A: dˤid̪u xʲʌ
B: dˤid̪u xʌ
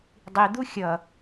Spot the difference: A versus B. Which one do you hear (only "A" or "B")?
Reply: A